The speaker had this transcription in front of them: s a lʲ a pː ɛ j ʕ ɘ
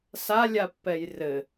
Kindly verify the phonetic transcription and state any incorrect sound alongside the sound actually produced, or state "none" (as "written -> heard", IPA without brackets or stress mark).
ʕ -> r